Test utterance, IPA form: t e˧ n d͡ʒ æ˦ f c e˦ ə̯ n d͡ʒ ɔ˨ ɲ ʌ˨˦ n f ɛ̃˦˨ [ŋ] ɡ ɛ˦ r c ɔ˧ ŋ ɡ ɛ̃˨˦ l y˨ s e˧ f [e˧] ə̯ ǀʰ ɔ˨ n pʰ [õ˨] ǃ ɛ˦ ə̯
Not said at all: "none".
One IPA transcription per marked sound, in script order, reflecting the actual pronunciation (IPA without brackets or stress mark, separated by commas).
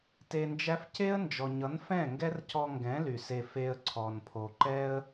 ŋ, e˧, o˨